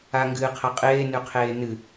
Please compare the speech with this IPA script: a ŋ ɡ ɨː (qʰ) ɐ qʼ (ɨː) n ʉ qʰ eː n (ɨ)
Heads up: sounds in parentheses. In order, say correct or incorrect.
correct, incorrect, correct

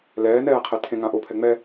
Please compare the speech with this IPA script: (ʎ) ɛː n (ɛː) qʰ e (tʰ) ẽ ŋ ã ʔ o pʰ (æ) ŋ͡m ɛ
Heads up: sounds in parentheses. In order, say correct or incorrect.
incorrect, correct, correct, incorrect

